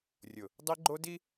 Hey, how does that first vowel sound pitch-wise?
low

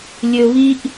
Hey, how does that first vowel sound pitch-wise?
high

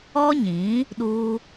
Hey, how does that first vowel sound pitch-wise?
high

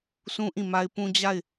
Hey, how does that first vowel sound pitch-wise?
high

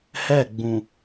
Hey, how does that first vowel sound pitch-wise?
falling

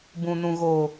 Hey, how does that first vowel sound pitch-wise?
low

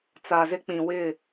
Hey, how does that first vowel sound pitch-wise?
low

